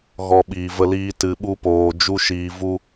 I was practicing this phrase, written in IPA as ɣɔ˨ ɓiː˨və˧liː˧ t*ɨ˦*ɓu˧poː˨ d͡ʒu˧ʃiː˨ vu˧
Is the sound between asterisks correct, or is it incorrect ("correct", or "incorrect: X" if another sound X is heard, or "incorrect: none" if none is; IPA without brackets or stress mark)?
incorrect: ɨ˨